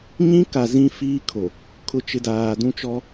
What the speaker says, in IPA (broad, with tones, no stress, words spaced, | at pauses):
ɲĩ˦ka˨ zĩ˦fiː˦kʰo˨ | kʰʊ˨t͡ʃɪ˨ daː˨dũ˦t͡ʃɔ˦